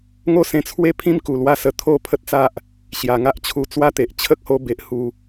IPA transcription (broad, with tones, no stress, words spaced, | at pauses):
ŋo˥˧sẽ˧t͡sʰwe˥˧pʰĩ˦m ku˨˩lwa˦sə˧ t̪ʰo˥˧pʰə˦t̚t͡sa˦ʔ | ɕja˨˩ŋa˦ʔ t͡ɕʰu˧ t͡swa˥˧t̪e˨ʔ t͡ɕʰə˦k̚ho˧ be˦ʔ hu˧